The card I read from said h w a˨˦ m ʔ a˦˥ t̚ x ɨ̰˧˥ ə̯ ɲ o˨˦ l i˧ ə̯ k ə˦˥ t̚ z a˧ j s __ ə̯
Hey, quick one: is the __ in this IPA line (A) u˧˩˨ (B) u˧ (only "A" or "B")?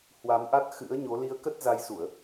A